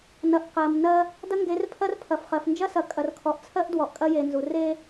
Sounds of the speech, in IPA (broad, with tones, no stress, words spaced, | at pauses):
nɐ˨ʔ qɜ˨mnɜ˦ | dɐ˦ŋɡe˨˦rpʰɜ˦r pʰɐ˨fχɜ˨fnd͡ʒɐ˦sɐ˨ kʼɐ˨rkʰɔ˨ʔt͡sʰɜ˦ʔ dwɔ˨ʔkʼɐ˦je˨nzu˨ re˦